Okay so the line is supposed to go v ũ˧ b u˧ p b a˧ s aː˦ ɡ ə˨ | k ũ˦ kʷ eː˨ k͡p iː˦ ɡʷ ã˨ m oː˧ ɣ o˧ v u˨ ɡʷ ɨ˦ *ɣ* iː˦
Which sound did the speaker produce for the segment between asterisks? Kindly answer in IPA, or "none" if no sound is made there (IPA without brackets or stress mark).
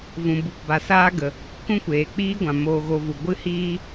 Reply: h